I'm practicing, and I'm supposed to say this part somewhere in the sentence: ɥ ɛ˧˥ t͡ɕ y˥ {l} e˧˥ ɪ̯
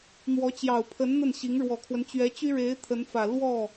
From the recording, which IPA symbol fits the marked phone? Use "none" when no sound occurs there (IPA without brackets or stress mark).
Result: ɻ